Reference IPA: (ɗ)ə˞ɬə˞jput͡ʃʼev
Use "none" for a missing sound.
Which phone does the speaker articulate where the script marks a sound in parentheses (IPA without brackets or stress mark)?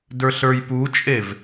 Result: d